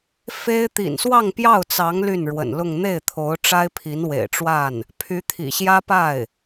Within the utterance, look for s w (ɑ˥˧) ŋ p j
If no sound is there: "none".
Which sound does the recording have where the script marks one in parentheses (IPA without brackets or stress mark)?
ɑ˥˧